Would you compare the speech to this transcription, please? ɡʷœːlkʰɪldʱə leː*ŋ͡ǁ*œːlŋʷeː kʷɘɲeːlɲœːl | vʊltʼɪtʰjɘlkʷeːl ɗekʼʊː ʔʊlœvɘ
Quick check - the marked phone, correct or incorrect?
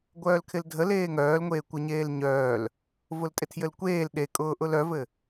incorrect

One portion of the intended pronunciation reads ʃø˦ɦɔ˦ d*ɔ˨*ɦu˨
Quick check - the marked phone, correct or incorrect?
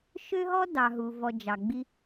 incorrect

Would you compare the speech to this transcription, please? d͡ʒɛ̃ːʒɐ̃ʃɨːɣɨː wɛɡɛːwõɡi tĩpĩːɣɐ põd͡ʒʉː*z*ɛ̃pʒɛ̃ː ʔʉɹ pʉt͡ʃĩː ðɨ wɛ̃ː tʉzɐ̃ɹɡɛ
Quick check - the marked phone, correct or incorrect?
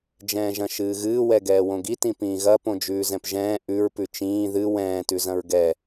correct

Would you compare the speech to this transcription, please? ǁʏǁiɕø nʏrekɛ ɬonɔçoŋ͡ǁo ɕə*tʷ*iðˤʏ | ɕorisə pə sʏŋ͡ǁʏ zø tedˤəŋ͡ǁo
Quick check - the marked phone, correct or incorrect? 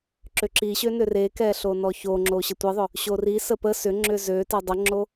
correct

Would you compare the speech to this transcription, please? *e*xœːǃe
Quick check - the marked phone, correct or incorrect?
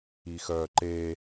incorrect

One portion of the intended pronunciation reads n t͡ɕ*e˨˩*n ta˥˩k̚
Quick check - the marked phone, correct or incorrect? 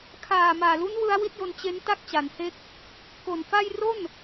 incorrect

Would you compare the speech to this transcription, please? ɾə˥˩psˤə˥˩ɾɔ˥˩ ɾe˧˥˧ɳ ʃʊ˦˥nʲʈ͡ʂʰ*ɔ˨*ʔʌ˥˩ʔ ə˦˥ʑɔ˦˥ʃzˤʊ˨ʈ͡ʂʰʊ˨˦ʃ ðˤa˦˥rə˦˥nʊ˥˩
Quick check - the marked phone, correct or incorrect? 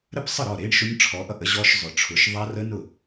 incorrect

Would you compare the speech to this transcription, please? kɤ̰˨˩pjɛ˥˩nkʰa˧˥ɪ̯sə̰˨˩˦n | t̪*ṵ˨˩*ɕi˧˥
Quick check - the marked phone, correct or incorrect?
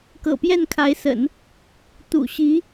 correct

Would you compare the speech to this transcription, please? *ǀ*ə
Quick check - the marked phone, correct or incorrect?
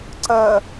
correct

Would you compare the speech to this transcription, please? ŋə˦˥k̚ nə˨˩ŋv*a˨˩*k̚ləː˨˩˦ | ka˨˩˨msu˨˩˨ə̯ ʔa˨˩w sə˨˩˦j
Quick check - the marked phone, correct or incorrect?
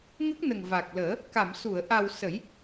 correct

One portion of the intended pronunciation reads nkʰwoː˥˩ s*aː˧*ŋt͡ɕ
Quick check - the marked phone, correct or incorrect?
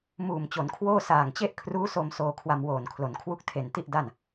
incorrect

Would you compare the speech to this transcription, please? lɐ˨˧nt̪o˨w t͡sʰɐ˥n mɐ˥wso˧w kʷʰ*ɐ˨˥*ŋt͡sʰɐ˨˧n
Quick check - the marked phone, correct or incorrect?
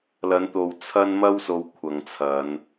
incorrect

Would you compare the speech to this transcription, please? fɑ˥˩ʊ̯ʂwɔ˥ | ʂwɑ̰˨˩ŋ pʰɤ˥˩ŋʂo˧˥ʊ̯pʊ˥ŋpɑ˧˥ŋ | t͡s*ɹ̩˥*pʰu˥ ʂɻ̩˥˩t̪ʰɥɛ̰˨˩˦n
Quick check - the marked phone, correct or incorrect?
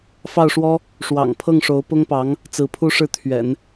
incorrect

